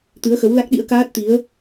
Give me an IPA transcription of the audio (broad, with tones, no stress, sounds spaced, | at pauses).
t̪ ɨ˨˦ ə̯ x ə˨˦ w l a˦˥ k̚ ɗ ḭ˧˥ ə̯ k aː˦˥ t̚ t̪ i˨˦ ə̯